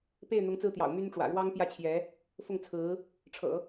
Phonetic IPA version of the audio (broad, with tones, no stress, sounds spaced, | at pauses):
p e˥˩ ɪ̯ n̪ ʊ˧˥ ŋ t͡s ɹ̩˥˩ t̪ j ɑ̰˨˩ ʊ̯ m y˥ n ʈ͡ʂ w ä̰˨˩ ɻ w ɑ˥ ŋ p j ä˥ t͡ɕʰ j ɛ˧˥ | f ʊ˥˩ ŋ t͡sʰ ɹ̩˧˥ | ʈ͡ʂʰ ɤ̰˨˩˦